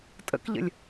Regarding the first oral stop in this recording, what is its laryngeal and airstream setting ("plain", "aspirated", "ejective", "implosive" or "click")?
ejective